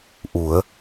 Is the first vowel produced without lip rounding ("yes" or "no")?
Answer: no